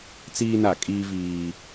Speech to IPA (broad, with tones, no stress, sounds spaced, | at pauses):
t͡s iː˦ n a˦˨ kʼ iː˦ v iː˦